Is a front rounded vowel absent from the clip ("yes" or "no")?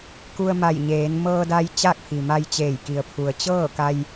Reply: yes